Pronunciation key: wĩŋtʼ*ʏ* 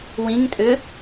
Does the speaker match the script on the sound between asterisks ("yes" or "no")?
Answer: yes